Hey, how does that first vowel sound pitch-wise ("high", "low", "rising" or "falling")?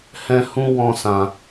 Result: high